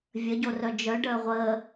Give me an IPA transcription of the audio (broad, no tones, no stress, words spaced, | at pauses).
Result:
vʲəɟorœ d͡ʒœ ɖəːʁʷəː